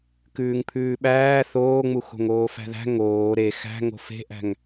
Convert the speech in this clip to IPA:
kʉːŋpʰʉːɓæː θoːŋ͡mu xo̤ŋoːfæ̤ðæ̤ ŋoː ɾe xæ̤ ŋo̤fe̤ʔæ̤ŋ

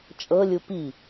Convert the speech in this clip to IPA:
t͡ʃʼɤlʲu pi

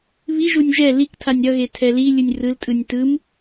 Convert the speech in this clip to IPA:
βiʒunʲ ʒɛ liktʰanʲ ɾʌɣe tʰɛlilʲɯnʲ rɯltʼɯnʲ tɯm

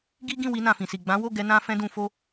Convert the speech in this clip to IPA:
ɡi˦ɡĩ˦˨ wi˧nã˨fĩ˨si˨ ɡ͡bã˨˦wo˦˨ɡɛ˨˦ nã˦fɛ̃˦dũ˧fo˦

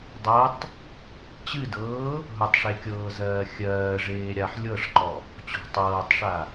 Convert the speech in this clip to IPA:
dˤɤtˤ | t͡ɕɨdɤː | ɦʊtˤʂekʲɤːzɜː xʲɜːʐeː ɾʲaħ lʲɤʂǃɔ | t͡ɕɔ̤ tˤɤːtˤʂa

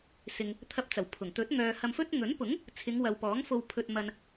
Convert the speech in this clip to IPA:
sɪ˨ŋ | t̪ʰɐ˧p̚t͡sɐ˨˩wpʰʊ˨˩ŋ t̪ɵ˨˥t̚ ŋœː˨hɐ˧mfɵ˥t̚ ŋɵ˨˥npʊ˨˥ŋ | t͡sʰɪ˨˧ŋwɐ˨wpɔː˨˥ŋ fo˧wpʰɵ˧t̚ mɐ˨n

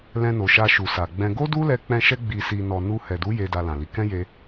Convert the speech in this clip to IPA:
lɛ̃˧no˨ʃa˧ ʃu˨sa˨ɡ͡bɛ̃˧ ɡo˦du˦lɛ˧k͡pɛ̃˧ ʃɛ˧ɡ͡bi˨si˨nɔ˨ nu˧ hɛ˨du˨˦ je˧da˧lã˨li˨˦ kɛ̃˦je˧

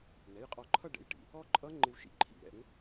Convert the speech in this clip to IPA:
nɛ˩˧˩jqʼɔ˧˩˧ǃʰʌ˥˧ ɖɛ̰˩˧˩jʈḭ˩˧˩ | ɔ˦˥ǃʼʌ˦˥ŋ͡ǃɪ˧w ʃḭ˦˥ǃʰḭ˧˩˧ ɾɛ̰˧˩˧ŋ

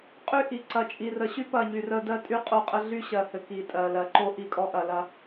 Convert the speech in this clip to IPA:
qʼy˦ʔi˨ ǀɐ˨t͡ʃʼi˨rə˨ɕy˦ pɐ˦˨ɲy˨ rə˦ dɜ˦ tʼy˦ qʼo˦qʼə˦ ɮy˦ɕɜ˨hɘ˨ ki˨tʼɜ˨lɜ˨ ǃo˦ ʔi˦˨kʼɔ˦ʔɐ˨ lɐ˦

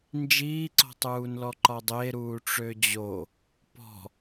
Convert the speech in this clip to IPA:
nd͡ʒiːǀɔ̤tˤuːnlɔ ǃɒdˤe ɾuːʈ͡ʂød͡ʑo | pɔ̤

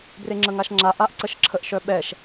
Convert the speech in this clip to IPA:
breŋ͡ǁəŋaʃŋ͡ǁa ʔaʔǀəʃǁʰəʔ ʃœɓɛʃ

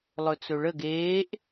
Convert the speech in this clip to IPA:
lˠɵt͡sɵɭəɡ eːʔ

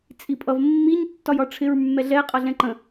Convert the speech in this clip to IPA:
t͡sʼipʼʌv mːiɲ tːɒjɒʈ͡ʂʰɪɹ mːɛɮɛ qʼʌɮɛ̃ǃə̃

